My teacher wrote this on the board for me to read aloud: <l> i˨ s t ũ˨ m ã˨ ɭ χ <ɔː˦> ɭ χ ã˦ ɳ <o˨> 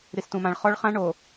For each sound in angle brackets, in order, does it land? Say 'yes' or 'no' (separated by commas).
no, no, yes